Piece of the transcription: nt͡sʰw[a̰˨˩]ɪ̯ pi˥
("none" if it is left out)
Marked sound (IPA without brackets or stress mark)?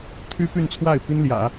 a˥˩